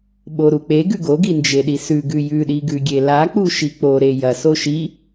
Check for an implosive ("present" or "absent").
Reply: present